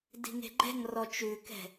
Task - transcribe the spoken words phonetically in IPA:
di̤ŋe̤ɡ͡ǃɛ̤ŋrɔ t͡ʃʉkɛ̤

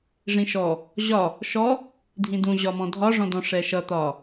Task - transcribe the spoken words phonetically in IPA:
ʐĩʃɔ | ʑɒ | ʃɔ | dʱĩdũ ʑɒmɔ̃dʱɒ ʐɔ̃dɔ̃ʂɛʃʌ t̪ɒ

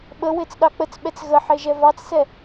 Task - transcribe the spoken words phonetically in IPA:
ɓəwet͡sɗɑ k͡pət͡sɓɛt͡s ɣəħeʒɛ vɑt͡ssɛ

